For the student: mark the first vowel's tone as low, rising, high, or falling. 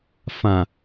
low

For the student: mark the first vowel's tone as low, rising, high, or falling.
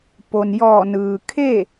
low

